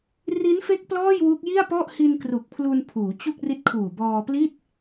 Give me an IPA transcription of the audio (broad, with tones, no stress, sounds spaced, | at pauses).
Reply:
r i˦˥ n f e˦˥ k̚ p l ɔː˥˩ j w u˦˥ k̚ j i˥˩ a̯ p ɔ˥˩ ʔ h i˧ n k r u˨˩ k̚ pʰ l u˧ n pʰ uː˩˦ t͡ɕ u˥˩ k̚ r i˦˥ t̚ kʰ uː˨˩ b ɔː˧ p l i˥˩ t̚